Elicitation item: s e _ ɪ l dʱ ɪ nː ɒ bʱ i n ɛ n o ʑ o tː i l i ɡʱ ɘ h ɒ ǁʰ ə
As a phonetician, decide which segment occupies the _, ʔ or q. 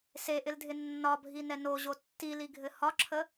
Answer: ʔ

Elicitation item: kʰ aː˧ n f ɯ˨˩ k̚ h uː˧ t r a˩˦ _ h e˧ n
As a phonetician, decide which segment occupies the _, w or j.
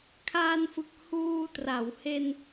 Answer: w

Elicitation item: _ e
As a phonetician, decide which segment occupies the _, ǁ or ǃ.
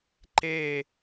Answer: ǃ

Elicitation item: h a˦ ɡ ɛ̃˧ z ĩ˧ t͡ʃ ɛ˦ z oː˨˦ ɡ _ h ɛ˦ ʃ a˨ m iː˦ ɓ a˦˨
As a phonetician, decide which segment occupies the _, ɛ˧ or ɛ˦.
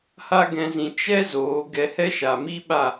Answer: ɛ˧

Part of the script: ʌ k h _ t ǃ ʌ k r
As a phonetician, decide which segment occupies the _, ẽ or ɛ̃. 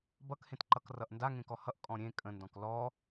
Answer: ẽ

